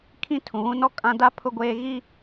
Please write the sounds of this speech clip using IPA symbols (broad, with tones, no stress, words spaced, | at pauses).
kʰĩ˦˨tʰũ˨βũ˦nɔ˦ kʼã˦ da˦ pʰʊ˦ɡʷeː˦ ɣi˦